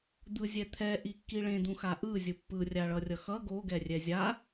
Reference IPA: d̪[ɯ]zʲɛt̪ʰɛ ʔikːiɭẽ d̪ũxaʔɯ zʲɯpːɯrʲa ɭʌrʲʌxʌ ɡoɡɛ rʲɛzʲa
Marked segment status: correct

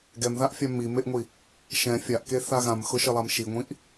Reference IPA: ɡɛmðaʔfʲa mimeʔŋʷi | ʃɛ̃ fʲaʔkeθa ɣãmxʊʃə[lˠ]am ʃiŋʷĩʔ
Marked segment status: correct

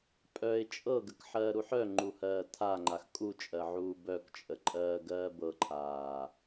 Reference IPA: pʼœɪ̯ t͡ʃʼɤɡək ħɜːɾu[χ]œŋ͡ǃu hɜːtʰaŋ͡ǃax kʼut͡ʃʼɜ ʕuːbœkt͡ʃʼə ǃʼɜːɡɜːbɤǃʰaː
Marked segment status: incorrect: ħ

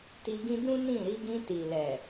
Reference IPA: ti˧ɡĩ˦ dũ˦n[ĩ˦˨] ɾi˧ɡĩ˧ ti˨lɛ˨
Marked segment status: correct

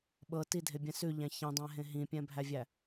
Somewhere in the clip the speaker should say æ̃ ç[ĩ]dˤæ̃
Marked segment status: correct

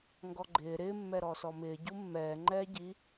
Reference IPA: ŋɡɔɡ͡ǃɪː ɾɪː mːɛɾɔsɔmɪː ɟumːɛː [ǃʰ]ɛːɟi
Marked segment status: incorrect: ŋ͡ǃ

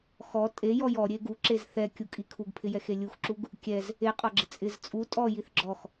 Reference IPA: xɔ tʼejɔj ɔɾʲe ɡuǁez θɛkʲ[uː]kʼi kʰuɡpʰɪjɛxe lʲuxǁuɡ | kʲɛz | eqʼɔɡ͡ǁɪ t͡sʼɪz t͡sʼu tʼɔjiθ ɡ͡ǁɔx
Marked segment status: incorrect: u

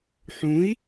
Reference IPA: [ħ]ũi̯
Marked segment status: correct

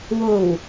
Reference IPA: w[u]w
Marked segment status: incorrect: o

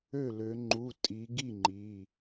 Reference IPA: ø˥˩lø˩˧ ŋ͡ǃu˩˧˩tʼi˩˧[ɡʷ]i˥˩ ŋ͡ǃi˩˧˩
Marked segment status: incorrect: ɡ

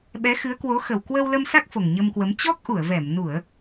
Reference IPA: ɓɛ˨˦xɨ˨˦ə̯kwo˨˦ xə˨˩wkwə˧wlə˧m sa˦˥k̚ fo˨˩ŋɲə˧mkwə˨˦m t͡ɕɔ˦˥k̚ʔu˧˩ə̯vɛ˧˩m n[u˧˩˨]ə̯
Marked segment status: correct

